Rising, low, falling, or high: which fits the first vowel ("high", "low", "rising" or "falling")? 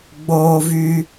high